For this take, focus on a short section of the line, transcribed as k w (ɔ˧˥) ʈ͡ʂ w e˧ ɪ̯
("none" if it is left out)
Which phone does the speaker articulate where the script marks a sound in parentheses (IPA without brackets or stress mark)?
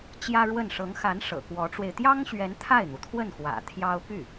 ɔ˧˥